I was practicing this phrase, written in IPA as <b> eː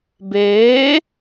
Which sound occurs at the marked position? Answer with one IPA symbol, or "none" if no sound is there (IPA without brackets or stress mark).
b